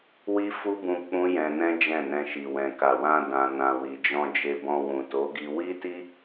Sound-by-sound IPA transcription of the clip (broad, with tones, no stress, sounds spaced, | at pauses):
w i˦ f u˦ b ũ˧ k͡p ũ˦ j ɛ̃˧ n ɛ̃˦ d͡ʒ ɛ̃˦˨ n ɛ̃˧ ʃ i˨ w ɛ̃˨ k a˨ w ã˧ d ã˨ n ã˨ w i˨ d͡ʒ ɔ̃˧ d͡ʒ e˧ b ɔ̃˧ w ũ˨ t o˨˦ ɡ i˧ w i˦ t i˦